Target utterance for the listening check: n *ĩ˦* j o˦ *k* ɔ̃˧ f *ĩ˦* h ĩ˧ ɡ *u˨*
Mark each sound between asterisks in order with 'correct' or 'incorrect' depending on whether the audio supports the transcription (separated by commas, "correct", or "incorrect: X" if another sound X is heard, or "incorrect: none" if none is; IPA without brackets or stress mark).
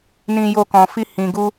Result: correct, correct, incorrect: i˦, incorrect: u˦